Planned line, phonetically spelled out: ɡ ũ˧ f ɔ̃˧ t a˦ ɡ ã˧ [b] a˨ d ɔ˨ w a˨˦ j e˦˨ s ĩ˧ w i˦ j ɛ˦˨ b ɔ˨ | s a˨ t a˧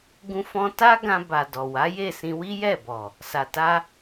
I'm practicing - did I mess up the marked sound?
no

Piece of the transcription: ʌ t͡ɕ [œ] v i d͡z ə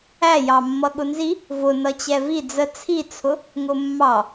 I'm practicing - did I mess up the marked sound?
yes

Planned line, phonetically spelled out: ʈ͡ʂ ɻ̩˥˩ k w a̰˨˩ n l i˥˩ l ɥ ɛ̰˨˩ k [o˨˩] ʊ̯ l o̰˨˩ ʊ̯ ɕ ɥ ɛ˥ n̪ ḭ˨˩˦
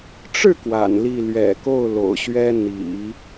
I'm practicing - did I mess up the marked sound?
yes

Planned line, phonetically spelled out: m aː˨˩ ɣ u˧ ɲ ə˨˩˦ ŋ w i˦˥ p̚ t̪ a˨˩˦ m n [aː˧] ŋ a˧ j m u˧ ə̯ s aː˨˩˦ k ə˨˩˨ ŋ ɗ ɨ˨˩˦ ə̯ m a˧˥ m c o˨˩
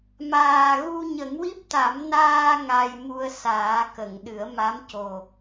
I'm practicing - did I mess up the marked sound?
no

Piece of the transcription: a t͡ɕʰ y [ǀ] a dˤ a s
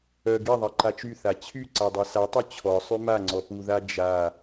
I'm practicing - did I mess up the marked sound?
no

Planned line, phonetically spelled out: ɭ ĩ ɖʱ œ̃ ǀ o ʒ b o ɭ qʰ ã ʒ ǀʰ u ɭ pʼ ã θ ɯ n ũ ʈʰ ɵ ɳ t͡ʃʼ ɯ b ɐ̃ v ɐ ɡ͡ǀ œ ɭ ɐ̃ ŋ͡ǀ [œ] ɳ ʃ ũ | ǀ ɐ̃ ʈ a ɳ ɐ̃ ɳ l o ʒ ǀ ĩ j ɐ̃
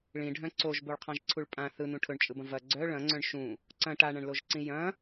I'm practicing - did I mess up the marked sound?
yes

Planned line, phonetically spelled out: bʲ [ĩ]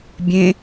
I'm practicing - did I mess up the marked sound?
yes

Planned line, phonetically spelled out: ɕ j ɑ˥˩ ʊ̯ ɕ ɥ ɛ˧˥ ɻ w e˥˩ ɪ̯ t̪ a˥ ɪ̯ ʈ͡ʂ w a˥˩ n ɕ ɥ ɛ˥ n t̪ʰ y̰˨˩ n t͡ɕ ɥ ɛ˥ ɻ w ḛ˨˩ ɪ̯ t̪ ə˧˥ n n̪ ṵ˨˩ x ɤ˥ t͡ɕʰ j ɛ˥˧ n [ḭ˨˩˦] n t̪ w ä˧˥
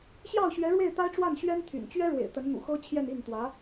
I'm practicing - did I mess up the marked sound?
yes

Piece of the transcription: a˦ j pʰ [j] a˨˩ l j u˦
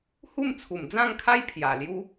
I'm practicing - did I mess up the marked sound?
no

